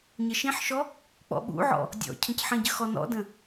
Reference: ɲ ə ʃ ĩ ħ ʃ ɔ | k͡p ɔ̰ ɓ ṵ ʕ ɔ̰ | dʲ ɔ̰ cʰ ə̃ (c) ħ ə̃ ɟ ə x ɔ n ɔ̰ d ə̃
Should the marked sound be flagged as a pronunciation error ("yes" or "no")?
no